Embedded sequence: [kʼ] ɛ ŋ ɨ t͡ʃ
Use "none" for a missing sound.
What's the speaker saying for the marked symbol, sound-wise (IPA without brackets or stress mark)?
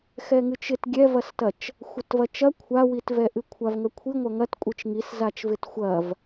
x